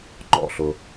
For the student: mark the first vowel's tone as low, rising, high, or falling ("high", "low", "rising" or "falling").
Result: falling